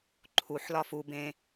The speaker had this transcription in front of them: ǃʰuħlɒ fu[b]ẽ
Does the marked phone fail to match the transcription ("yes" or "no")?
no